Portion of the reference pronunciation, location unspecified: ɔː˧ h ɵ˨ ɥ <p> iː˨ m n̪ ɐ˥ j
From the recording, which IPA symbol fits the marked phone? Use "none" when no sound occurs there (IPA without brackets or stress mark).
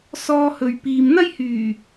p